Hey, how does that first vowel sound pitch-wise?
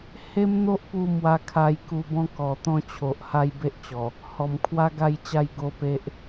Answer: high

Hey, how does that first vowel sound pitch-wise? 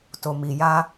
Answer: low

